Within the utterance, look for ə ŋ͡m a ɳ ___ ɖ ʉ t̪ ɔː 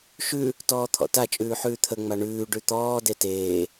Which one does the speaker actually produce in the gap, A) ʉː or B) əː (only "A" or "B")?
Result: A